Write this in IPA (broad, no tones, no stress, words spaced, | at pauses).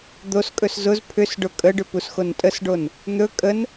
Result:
d̪oskʼɵs zʊz pʰʏs ɖʊkʼəɖʏ pusxontʼəsɖon | n̪ɵ kʼən